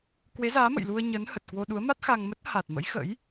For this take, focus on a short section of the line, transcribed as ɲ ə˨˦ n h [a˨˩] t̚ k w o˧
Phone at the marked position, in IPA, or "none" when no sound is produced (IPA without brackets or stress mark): ə˨˩